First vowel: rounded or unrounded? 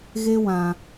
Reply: unrounded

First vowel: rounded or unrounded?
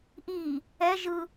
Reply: unrounded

